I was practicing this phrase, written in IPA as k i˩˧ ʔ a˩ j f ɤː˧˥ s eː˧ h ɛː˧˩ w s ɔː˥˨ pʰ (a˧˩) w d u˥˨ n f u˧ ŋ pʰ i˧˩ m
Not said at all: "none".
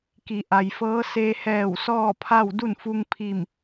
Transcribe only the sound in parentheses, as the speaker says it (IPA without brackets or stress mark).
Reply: a˥˨